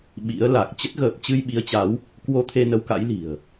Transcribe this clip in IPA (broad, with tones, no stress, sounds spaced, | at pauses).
ɓ ḭ˧˥ ə̯ l a˨˩ k̚ t͡ɕ ə˦˥ t̚ ɣ əː˨˩ p̚ t͡ɕ ɨ˧ j ɓ i˨˦ ə̯ t͡ɕ a˨˦ w | k w o˧ t̪ʰ e˧ n ə˨˦ w k a̰˧˥ j l i̤˨˩ ə̯